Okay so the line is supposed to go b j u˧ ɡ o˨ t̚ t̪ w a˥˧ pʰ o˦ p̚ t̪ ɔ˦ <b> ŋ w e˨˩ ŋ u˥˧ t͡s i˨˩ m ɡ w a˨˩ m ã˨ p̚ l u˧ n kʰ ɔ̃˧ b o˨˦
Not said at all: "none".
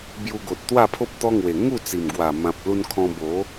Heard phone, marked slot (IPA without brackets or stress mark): none